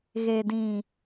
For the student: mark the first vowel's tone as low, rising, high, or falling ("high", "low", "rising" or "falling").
low